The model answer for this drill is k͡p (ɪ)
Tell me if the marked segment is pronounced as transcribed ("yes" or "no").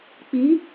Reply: no